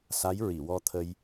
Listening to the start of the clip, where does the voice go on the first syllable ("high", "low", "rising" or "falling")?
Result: rising